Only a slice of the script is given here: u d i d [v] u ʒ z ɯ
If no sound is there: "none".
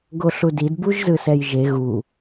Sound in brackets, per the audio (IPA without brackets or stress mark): b